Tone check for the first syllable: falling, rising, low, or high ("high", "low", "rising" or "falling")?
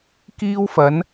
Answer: high